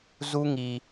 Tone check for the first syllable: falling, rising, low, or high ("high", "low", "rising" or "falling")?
high